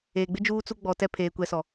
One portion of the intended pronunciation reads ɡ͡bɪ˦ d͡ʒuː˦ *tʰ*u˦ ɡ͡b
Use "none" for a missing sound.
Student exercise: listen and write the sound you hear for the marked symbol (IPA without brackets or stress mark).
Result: t͡s